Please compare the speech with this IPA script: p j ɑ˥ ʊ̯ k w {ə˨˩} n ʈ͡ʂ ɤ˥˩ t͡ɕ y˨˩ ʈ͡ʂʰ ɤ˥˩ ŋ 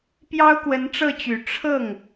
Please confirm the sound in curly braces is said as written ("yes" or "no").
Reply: no